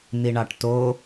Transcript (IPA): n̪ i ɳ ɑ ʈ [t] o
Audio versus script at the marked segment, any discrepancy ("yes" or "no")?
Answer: no